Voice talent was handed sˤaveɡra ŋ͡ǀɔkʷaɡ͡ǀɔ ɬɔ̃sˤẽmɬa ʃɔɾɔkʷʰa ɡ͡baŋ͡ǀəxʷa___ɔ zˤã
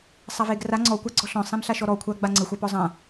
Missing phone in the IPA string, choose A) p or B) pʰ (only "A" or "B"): A